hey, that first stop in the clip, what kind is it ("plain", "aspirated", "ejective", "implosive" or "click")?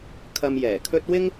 aspirated